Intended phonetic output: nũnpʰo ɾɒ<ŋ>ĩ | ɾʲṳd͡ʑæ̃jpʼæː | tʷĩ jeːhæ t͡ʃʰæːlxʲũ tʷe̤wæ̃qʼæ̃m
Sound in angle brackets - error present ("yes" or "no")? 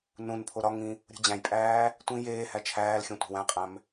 no